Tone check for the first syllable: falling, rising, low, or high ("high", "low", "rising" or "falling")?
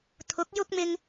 rising